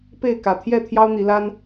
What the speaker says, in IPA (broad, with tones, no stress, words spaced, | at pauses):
pe˥˨ɪ̯ kä˨˩t̪ʰjɛ˥˨ t̪ʰjɑ˦ʊ̯n̪i˨˦la˦n